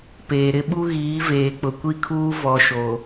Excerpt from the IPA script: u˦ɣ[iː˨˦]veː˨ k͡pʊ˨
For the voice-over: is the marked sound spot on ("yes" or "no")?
yes